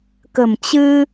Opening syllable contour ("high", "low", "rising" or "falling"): low